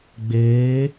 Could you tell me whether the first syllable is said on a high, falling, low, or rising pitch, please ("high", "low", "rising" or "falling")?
rising